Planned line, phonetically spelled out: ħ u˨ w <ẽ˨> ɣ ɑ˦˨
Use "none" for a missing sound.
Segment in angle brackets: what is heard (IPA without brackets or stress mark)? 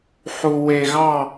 e˨